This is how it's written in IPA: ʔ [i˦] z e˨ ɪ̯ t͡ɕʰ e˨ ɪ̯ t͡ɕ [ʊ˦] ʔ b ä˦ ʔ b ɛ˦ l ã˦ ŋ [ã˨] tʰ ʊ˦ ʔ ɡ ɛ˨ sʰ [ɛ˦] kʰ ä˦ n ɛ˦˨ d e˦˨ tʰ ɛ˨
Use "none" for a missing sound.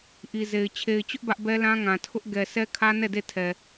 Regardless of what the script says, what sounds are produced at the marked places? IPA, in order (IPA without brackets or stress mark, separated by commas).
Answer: i˨, ʊ˦, ã˨, ɛ˦